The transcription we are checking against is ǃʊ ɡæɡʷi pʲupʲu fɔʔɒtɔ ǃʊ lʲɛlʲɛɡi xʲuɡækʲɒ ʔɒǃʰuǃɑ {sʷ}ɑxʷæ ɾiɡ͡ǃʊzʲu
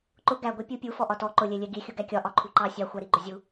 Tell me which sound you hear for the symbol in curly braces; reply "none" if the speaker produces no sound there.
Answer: sʲ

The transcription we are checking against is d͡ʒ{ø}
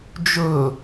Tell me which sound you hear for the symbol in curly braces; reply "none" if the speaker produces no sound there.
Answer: ɵ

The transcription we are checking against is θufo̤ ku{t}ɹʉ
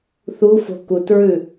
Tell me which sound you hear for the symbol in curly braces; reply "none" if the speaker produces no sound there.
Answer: t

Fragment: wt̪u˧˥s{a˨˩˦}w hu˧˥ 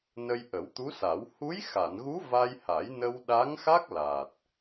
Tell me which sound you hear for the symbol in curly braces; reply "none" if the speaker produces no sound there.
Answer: a˨˩˦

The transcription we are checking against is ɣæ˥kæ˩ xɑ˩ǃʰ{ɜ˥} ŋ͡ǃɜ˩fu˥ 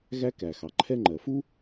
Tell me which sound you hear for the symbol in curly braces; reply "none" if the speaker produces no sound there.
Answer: ɛ˥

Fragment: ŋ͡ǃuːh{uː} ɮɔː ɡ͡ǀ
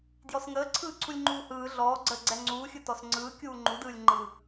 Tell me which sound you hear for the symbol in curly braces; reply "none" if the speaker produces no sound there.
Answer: ɯː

